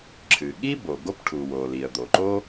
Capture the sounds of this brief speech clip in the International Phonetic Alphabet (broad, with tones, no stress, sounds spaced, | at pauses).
ǁʰ ɨ˩ ɠ i˥ b o˩ ɡ o˥ p ʈʰ u˩ w o˩ l i˩ ə̯ d̪ o˩ ǃ o˥